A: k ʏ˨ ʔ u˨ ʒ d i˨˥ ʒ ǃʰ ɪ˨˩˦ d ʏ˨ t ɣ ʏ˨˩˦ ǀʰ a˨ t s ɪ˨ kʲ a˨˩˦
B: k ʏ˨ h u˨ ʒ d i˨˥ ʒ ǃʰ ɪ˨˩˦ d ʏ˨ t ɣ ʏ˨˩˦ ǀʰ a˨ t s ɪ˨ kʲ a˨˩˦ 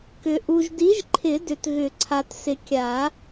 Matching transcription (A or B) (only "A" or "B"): A